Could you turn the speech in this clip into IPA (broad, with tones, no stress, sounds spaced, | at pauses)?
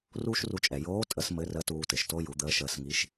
r uː˥ ʃ r u˧ t͡ʃʼ ɛ˩ j oː˧˥ tʼ ə˧˥ s m ɘ˧˥ r ə˧˥ t uː˧ t ɘ˩ ʃ t o˥ j u˩˧ d̪ əː˧˥ ʃ əː˧ s ŋ i˧˥ ʃ